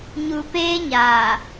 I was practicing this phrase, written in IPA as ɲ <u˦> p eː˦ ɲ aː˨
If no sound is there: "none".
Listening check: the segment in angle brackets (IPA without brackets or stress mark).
u˨